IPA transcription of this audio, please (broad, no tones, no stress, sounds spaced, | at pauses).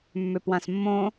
mː ʏ p w ã s mː õ